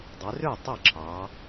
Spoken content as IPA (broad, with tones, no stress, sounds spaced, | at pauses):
dˤ ø˩˧ r ø˥˩ tˤ ɑ˥˩ ǁʰ ɑː˩˧